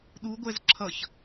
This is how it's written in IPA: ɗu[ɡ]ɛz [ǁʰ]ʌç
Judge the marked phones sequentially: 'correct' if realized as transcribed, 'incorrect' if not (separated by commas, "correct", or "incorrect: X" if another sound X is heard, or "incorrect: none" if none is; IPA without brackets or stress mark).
incorrect: ɡʷ, correct